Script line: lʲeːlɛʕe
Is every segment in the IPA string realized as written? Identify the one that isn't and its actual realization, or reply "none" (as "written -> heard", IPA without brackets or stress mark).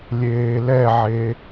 none